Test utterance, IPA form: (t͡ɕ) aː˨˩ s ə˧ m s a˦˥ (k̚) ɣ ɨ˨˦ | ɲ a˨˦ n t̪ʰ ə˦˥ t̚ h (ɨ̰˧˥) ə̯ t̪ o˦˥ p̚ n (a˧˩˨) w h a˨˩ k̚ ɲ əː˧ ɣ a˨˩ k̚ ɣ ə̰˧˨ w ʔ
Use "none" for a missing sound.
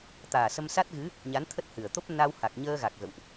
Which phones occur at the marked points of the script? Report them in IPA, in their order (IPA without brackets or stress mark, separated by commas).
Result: t̪, t̚, ɨ˨˩, a˧